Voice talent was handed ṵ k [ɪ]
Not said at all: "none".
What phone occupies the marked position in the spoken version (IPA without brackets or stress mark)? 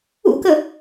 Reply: ə